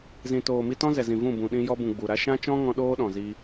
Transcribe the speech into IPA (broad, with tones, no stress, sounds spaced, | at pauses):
z ĩ˨ t oː˨ m i˧ t ɔ̃˦ z ɛ˨ z ĩ˨ v ũ˦˨ b ũ˨ ɗ ĩ˧ j ɔ˧ b ũ˨ ɡ͡b u˨ ɾ a˦ ʃ ã˦ t͡ʃ ɔ̃˦ ŋ ɔ̃˧ ɗ oː˦ ɗ ɔ̃˨ z i˧